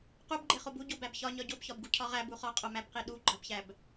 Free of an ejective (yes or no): no